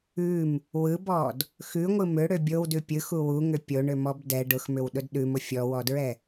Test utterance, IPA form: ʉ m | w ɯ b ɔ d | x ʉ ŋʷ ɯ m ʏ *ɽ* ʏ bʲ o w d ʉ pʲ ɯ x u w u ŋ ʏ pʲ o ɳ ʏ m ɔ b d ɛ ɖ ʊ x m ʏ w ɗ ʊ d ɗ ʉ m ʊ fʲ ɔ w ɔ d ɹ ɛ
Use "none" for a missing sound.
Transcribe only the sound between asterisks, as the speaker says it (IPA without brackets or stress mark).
ɽ